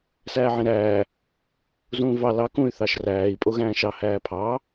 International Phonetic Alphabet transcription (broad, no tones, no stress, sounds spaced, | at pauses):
s æː ʕ ẽ ɾ æː | z ũː v ɑ l ɑ k ũ y̯ θ ɑ ʃ r æː i̯ pʼ o ɣ æ̃ː ʃ ɑ h æː pʰ ɑ